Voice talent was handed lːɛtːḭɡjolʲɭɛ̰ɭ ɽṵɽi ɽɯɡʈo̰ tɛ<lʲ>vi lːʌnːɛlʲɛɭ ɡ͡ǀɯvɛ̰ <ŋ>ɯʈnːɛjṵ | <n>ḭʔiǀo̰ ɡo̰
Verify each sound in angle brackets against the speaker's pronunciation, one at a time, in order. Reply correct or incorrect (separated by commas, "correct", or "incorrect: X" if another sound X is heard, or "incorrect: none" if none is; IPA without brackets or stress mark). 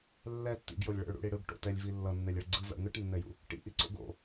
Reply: correct, correct, incorrect: ʈ